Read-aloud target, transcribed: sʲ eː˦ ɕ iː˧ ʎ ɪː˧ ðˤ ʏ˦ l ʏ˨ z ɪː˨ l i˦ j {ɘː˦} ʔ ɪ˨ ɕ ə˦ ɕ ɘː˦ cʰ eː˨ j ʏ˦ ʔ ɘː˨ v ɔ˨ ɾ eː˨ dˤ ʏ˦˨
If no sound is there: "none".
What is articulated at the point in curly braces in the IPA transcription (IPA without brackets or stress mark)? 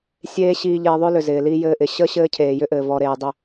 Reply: ɘː˦